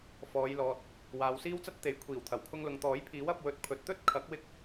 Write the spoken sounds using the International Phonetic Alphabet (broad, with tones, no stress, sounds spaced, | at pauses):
f ɔː˨˧ j l ɔː˨ t̚ | w aː˨ w s iː˥ w t͡s ɐ˥ t̚ t̪ e˨˥ j kʷʰ iː˨˩ w t̪ʰ ɐ˨˩ w kʰ ʊ˧ ŋ l ʊ˨ ŋ t̪ ɔː˨˥ j pʰ iː˨˥ w ɐ˨˥ p̚ w ɵ˧ t̚ pʰ ɵ˨˥ t̚ t̪ ɵ˥ t̚ kʰ ɐ˨˥ k̚ w ɪ˧ k̚